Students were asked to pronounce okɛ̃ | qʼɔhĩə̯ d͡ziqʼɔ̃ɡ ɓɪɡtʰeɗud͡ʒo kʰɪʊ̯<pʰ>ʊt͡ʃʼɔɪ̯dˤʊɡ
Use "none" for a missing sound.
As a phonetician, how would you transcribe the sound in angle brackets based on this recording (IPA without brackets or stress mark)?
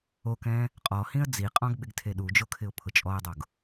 pʰ